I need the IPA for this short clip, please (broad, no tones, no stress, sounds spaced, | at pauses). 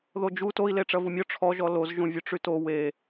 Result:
ð o d͡ʒ u t o i̯ l e ʈ͡ʂ ɐ v u mʲ ɔ ʈ͡ʂʰ ɔ ʒ ɔ l o z ʒ ũ vʲ ɵ ʈ͡ʂ y t o w e